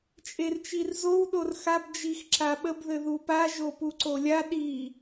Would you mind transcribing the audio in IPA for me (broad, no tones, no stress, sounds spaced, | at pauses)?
t͡ʃʼ e r t͡ʃ i r z o w ɗ o r x a b d͡ʒ i x ǁ a ɓ ə b ð ɘ ð u p a ʒ o p u ǀ o lʲ a ɗ i